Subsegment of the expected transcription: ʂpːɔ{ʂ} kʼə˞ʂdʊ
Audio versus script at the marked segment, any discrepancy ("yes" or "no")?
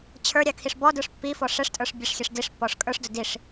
no